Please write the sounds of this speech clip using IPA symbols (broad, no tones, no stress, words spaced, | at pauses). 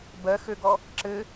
bɜxøɡɔ | ǁɘ